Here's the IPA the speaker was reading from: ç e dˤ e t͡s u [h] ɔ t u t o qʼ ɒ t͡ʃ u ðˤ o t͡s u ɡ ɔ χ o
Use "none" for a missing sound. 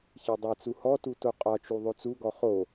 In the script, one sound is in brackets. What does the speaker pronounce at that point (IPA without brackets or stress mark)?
h